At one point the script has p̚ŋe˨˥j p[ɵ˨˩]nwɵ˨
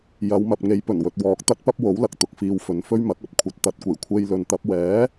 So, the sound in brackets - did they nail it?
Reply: yes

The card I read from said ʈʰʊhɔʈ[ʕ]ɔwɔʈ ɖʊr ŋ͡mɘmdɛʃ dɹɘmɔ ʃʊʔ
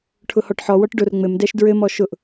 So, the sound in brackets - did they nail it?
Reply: no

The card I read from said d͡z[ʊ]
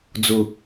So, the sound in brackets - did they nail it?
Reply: yes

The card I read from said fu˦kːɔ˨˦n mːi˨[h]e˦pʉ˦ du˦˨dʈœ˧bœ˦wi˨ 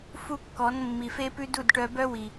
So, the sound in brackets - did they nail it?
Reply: no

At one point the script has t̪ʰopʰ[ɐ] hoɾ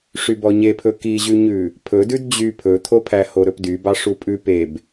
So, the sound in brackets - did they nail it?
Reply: no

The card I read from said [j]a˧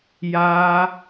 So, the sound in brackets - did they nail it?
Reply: yes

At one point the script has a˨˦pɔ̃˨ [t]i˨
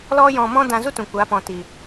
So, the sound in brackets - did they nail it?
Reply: yes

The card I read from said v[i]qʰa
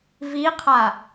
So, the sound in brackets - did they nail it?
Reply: yes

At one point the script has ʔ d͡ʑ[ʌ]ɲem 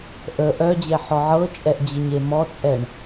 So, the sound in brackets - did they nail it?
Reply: no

